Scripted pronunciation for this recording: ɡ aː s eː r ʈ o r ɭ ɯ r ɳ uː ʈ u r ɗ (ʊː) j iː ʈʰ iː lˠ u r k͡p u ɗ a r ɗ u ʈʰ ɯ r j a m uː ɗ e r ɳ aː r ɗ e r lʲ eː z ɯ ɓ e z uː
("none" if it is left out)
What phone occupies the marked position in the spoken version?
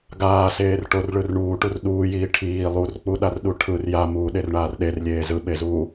uː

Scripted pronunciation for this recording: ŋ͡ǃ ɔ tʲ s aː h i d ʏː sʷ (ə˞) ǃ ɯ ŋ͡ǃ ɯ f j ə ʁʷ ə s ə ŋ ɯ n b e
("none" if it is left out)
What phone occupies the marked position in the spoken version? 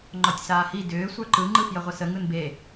ə˞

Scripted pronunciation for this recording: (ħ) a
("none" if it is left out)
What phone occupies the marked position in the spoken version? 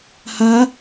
h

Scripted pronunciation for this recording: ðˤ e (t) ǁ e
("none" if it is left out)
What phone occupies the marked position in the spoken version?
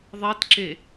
t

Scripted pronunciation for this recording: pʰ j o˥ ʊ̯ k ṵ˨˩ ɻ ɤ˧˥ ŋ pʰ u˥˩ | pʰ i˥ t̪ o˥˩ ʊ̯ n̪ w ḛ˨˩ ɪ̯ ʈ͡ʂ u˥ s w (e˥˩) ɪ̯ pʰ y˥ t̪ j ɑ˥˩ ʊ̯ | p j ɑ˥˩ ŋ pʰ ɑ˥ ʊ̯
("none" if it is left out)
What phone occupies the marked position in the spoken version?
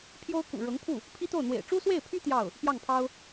e˥˩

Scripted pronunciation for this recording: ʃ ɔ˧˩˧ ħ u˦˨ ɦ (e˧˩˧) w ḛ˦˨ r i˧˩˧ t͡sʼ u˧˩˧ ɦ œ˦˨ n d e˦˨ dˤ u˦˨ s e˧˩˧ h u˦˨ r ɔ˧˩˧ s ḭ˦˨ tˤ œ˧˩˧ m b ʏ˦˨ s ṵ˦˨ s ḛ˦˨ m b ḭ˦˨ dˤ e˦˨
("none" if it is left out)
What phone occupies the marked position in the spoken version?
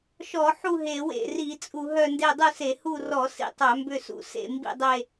e˧˩˧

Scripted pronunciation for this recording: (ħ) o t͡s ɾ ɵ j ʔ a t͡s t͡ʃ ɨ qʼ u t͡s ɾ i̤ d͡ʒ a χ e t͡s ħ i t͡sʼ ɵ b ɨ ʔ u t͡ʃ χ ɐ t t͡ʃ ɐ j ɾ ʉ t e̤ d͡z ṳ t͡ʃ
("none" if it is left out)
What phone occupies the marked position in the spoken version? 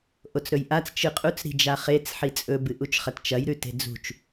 ʔ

